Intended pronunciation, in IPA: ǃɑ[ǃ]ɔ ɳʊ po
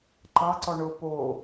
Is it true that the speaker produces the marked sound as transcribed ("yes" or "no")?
no